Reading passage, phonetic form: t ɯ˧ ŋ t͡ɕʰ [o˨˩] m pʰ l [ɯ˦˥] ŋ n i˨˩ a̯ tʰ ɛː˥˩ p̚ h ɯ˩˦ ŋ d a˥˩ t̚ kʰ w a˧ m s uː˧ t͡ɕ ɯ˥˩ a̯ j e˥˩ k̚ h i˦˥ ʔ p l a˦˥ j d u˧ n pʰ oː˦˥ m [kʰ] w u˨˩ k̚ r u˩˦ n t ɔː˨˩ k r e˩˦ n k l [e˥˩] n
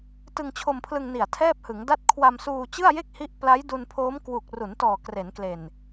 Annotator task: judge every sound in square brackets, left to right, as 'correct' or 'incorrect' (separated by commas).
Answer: incorrect, incorrect, incorrect, incorrect